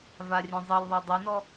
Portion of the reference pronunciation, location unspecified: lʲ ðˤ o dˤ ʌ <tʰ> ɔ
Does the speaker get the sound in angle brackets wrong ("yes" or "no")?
yes